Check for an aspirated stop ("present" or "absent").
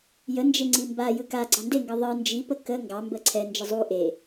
present